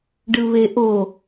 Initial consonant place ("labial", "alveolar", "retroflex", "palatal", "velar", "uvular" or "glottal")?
retroflex